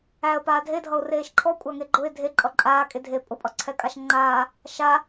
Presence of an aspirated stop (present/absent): present